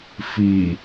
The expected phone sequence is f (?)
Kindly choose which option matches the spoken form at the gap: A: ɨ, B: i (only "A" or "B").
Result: B